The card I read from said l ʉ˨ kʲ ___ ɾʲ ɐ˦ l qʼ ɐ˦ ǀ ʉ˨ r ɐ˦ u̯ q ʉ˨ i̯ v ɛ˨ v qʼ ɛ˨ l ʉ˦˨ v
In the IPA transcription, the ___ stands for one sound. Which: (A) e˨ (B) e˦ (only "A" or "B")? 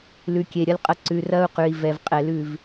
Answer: A